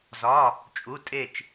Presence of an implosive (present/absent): absent